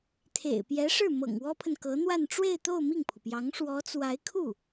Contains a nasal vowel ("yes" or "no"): no